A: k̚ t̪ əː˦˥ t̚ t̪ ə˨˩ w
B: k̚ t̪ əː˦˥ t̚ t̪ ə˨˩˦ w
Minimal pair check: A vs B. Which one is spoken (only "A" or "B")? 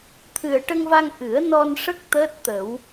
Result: B